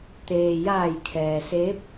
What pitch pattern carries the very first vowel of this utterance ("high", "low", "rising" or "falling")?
low